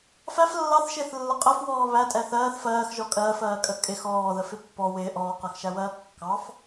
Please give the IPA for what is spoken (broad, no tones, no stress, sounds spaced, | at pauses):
f æ f lː ɑ θ ʃ ɪː θ lː ə qʼ ə f w ɔː β æ tʼ ɛ θ ɜː θ f ɜː x ʒ ɔ kʼ ɜː f ɜː kʼ ə kʼ ɪ x ɔː ð ə f ɪ pː ɔ w ɪː ʔ ɔː q ɜ x ʃ æ w ɜː kː ɑ f